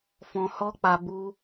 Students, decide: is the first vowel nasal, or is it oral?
nasal